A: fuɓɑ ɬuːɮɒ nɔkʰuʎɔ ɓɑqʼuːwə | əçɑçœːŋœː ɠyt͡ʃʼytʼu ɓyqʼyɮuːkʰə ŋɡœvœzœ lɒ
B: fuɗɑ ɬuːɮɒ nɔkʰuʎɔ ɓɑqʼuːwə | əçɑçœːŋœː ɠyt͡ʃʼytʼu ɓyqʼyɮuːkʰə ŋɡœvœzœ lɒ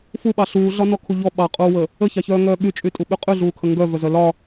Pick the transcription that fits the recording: A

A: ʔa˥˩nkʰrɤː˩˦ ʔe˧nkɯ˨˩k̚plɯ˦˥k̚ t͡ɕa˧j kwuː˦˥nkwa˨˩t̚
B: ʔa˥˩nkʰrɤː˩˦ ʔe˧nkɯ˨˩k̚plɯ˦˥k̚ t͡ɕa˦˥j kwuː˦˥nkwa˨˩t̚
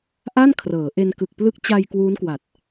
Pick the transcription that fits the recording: A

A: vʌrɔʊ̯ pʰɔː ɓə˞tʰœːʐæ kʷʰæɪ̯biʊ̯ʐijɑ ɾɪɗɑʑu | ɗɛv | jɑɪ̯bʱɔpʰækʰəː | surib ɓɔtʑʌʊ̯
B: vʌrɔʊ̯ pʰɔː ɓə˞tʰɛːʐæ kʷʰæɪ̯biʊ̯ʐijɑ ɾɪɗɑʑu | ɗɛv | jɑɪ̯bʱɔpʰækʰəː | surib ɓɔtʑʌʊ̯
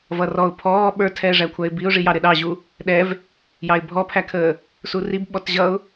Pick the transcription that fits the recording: B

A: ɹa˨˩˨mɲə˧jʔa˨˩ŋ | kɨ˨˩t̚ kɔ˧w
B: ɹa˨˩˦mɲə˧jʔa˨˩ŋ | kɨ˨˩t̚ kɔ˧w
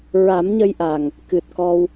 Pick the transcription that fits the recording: B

